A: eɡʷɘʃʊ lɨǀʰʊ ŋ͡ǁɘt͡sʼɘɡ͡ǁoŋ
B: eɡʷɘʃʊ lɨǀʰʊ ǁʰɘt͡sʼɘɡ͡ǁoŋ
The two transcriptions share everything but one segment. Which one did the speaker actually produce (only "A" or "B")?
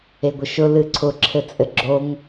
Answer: B